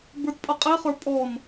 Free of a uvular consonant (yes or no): no